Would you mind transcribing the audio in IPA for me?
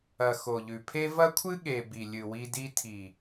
ɐ˨ x o˨ ʎ ʉ˨ pʰ e˦ v ɐ˦ kʷʰ ɨ˦ ɠ e˨ b i˨ lʲ ɨ˨ w i˧ d i˧ tʰ i˨

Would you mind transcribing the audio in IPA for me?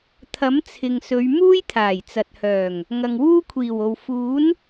t̪ʰ ɐ˨˥ m t͡sʰ ɪ˨ ŋ s ɵ˨˧ ɥ m uː˥ j t̪ʰ aː˨˩ j t͡s ɐ˨ t̚ h œː˨˩ ŋ | ŋ ɐ˨ ŋ w uː˥ kʷʰ iː˨˩ w o˨ w f uː˨˥ n

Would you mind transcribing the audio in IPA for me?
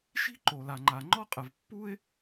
ʃ i̤˥ ǃ o˩ l a˩ ŋ͡ǃ a˩ ŋ͡ǃ ɔ˥ qʼ ɐ˩ v pː u˥ ɪ̯

